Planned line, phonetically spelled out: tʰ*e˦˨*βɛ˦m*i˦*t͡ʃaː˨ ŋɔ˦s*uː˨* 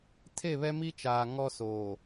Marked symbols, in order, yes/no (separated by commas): yes, yes, no